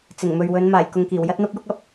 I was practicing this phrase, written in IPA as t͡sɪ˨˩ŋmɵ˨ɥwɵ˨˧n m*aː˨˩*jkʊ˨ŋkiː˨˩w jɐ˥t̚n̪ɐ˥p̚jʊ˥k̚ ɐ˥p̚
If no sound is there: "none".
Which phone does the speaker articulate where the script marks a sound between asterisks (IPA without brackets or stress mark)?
aː˨˩